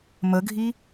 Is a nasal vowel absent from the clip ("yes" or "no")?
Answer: yes